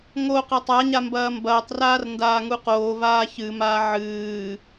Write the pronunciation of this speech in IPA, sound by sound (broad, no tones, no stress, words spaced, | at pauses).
ŋo qɐtˤaɲa mbɐːmbɐːtˤraːr ndaːŋuqoːvaː çɨmaː ʕɨː